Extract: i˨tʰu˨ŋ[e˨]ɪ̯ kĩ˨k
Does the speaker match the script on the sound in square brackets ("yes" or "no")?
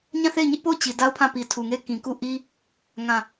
no